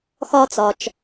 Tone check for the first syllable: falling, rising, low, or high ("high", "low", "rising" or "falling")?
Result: high